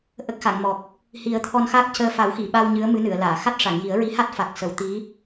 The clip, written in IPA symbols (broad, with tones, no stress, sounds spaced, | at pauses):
ʔ ə˦˥ k̚ x a˨˩˨ ŋ m ɔ˨˩ k̚ | h i˨˩˦ ə̯ t̪ʰ ɔ˧ n x a˦˥ k̚ c əː˧ f a˨˩˦ w x i˨˩˨ ɓ a˧ w ɲ ɨ˧˥ ə̯ m ɨ˧˥ n ɨ˨˩˨ ə̯ l aː˨˩˨ x a˦˥ t̚ ʂ a˨˩˨ ŋ j i˨˩˦ ə̯ ɹ i˧˥ h a˦˥ t̚ f a˨˩ k̚ s ə˨˩˦ w t̪ i˧˥